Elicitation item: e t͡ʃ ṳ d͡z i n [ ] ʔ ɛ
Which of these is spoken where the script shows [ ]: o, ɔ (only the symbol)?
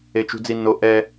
o